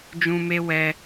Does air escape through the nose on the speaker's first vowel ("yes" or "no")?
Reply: yes